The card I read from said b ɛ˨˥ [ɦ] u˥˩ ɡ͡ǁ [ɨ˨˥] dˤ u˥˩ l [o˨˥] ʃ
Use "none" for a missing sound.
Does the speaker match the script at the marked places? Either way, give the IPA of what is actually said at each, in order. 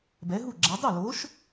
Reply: ɦ, ɛ˨˥, o˨˥

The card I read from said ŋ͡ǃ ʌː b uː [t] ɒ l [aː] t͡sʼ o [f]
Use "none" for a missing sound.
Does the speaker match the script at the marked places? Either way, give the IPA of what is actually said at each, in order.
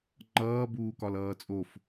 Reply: k, ʌː, f

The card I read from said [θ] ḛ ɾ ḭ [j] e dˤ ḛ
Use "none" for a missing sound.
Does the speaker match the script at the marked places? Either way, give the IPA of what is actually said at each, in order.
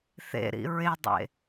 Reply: θ, ɹ

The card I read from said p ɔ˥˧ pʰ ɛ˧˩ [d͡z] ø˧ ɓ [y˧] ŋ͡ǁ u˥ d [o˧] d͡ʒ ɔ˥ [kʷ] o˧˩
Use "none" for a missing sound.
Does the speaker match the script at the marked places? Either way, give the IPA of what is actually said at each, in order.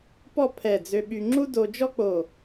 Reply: d͡z, y˧, o˧, k͡p

